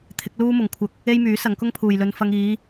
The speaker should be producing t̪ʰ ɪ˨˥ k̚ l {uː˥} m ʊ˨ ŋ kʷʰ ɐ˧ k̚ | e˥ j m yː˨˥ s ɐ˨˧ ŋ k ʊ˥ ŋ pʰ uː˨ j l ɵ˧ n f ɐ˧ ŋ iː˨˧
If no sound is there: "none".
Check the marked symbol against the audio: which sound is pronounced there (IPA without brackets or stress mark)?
uː˥